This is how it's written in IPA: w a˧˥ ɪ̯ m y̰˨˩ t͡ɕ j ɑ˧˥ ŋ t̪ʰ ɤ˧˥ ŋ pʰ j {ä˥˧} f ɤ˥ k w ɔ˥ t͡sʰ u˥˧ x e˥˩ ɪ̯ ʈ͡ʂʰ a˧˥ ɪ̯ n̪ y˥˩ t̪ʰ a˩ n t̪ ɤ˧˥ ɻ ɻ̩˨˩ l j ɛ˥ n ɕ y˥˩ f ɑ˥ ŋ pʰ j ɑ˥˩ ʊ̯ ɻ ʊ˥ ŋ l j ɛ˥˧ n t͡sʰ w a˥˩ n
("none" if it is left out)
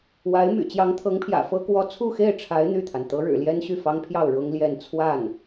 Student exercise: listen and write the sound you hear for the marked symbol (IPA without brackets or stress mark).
ä̰˨˩